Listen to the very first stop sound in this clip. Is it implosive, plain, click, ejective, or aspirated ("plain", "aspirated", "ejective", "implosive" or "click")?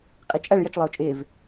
ejective